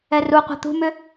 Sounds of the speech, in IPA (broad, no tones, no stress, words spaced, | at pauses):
ɛruqʷa̤ t̪ṳmʏ